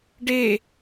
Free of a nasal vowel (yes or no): yes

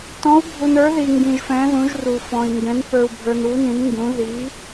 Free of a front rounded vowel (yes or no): yes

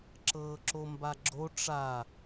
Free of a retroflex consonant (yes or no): no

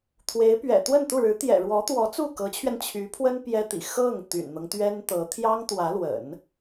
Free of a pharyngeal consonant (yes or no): yes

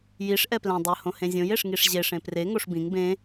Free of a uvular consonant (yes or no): yes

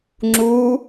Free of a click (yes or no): no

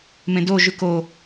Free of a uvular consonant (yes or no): yes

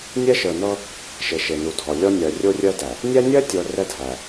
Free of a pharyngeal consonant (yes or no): yes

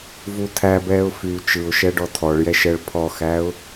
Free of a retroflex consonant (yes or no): no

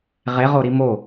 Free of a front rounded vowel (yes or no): yes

